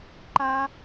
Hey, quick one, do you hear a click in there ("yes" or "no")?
yes